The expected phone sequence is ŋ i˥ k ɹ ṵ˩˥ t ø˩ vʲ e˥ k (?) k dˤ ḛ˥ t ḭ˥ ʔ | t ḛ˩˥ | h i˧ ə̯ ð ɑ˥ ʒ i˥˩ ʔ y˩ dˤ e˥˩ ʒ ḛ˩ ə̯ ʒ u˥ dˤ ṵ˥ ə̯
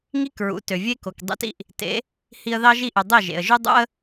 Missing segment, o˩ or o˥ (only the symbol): o˩